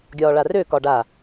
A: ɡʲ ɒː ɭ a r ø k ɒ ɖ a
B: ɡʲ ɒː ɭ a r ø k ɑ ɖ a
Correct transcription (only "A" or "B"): A